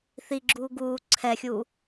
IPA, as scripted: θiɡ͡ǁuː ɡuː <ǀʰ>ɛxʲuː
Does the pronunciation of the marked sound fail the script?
no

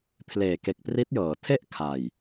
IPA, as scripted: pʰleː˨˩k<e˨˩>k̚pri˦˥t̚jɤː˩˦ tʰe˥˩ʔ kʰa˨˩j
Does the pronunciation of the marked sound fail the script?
no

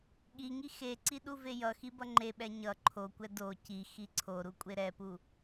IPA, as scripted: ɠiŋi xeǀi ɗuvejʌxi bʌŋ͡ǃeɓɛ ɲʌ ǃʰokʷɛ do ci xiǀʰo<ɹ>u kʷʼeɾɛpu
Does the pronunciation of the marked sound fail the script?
yes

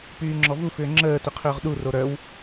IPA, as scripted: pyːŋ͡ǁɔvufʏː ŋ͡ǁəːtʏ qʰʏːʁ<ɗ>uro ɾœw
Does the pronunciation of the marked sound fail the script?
no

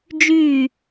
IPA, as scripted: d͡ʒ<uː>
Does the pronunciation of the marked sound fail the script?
yes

